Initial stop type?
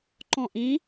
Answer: click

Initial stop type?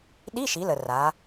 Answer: implosive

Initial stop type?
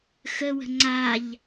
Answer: click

